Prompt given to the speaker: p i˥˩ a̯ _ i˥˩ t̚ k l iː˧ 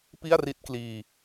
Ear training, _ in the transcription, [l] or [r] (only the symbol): r